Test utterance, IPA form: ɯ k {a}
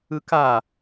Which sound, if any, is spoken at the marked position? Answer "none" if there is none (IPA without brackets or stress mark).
a